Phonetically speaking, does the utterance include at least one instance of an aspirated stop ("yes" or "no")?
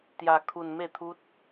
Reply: yes